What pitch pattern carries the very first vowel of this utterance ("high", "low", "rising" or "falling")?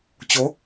rising